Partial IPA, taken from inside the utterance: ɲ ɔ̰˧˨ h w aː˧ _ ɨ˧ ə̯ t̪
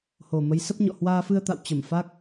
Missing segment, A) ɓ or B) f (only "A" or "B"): B